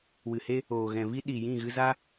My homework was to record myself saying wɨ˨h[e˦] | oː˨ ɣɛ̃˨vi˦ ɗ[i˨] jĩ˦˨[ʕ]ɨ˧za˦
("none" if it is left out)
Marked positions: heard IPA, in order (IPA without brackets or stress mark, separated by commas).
e˦, i˨, ɣ